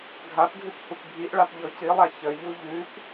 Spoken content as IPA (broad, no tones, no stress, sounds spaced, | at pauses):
ɡʱ a p ɡʱ ʉ p h u p bʱ i ʔ ɭ a p ʎ ɔ c i lˠ a ç ə ʎ u ʎ ʉ p